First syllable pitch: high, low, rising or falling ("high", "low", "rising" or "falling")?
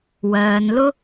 low